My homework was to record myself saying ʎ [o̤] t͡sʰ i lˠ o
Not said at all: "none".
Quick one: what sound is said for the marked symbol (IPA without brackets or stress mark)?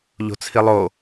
o̤